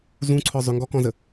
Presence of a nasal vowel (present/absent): present